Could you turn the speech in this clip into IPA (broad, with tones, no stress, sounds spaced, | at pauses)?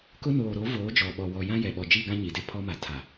k ʊ˦ n oː˨ ɾ o˨˦ v oː˨˦ d͡ʒ ɔ˨ ɓ ɔ˨ w ɔ˨ j ã˦ j ɛ˨ ɓ ɔ˨ d͡ʒ i˦˨ ɡ ã˦ ɲ i˨ d e˦ pʰ ɔ˦ m a˨ tʰ a˨